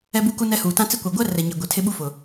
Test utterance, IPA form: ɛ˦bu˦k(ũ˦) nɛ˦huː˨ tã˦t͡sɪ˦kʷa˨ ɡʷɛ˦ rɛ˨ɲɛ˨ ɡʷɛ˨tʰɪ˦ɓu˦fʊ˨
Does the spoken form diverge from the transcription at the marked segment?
yes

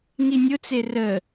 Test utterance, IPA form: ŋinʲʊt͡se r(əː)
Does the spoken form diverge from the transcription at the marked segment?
no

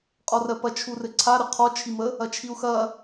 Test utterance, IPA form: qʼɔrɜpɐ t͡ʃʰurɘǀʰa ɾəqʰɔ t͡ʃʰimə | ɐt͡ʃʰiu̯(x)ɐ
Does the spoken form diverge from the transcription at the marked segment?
no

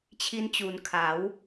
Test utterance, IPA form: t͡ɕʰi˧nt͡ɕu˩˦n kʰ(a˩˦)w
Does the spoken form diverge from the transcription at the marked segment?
no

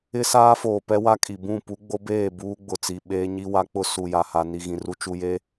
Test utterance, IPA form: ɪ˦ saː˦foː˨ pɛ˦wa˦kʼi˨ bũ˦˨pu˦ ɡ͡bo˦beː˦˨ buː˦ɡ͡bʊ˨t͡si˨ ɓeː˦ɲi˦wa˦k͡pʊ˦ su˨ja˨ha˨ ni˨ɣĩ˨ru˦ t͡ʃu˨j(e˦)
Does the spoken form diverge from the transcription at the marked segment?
no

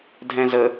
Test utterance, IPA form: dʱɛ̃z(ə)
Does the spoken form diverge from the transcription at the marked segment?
no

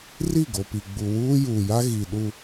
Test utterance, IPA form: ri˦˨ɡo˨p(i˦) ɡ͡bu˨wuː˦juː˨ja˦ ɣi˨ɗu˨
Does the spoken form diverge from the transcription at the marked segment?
yes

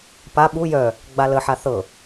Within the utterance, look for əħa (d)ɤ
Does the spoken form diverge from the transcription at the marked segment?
yes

